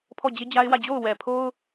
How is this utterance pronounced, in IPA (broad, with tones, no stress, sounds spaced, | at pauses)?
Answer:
pʰ ɔ˦˨ d͡ʑ e˦ d͡ʑ a˦ ɪ̯ w ä˦˨ d͡ʑ o˦˨ ʊ̯ w ɛ˨ pʰ o˦ ʊ̯